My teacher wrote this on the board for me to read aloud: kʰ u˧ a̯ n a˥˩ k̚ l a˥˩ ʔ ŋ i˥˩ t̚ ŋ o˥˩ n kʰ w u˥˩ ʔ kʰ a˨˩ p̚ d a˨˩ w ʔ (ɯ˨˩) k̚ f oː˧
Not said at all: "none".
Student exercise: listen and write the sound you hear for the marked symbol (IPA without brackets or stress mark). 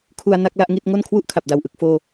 ɯ˨˩